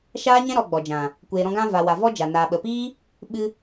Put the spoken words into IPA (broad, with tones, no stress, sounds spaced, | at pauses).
ʃ aː˦ ɲ ɛ̃˦ ɾ ɔ˨ ɡ͡b ɔ˨ d͡ʒ ã˨ | kʷ eː˨ ɾ ɔ̃˧ ɡ ã˧ v a˨ w a˨ v ɔ˦ d͡ʒ a˨ n aː˨ ɓ ə˨ p iː˦ | ɓ ɨ˧